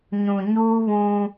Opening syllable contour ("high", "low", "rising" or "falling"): low